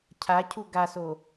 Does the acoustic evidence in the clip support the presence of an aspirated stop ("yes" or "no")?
yes